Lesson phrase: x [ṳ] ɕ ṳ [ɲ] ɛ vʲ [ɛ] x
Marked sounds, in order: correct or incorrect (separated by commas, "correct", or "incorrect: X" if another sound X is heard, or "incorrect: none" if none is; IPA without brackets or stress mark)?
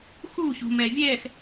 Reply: incorrect: u, incorrect: m, correct